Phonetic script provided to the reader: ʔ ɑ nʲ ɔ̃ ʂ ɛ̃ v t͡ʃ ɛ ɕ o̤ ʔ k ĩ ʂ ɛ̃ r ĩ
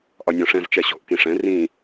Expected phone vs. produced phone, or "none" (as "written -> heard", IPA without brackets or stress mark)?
ɑ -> ɒ